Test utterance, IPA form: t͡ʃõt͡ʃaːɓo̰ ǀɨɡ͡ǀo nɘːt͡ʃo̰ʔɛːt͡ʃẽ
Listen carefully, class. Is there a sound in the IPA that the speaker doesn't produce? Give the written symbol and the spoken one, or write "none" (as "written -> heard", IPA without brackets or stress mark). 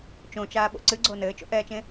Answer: none